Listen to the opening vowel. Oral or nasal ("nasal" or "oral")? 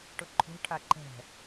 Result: oral